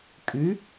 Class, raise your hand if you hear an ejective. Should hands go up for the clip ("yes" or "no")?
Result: yes